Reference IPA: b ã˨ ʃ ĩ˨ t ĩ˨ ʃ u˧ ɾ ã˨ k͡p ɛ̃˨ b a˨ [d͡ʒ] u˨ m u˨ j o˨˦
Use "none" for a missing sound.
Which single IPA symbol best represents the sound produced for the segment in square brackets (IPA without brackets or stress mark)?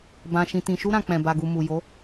ɡ